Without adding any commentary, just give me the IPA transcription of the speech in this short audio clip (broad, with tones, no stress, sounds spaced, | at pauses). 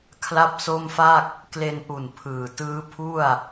kʰ l a˥˩ p̚ s o˥˩ m f a˥˩ k̚ | k l e˧ n ʔ u˨˩ n pʰ ɯː˨˩ t ɯː˦˥ pʰ u˥˩ a̯